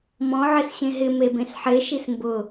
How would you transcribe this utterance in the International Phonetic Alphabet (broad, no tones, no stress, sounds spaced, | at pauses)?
m ɔ̃ ʕ ɪ s ɕ ẽ ɦ ɪ m e b ẽ s ħ e ʃ i s m b ʊ